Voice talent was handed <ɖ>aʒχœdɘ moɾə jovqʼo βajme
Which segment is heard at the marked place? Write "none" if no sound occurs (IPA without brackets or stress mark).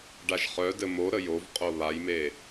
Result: ɖ